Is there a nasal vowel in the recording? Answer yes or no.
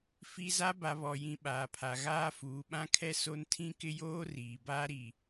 yes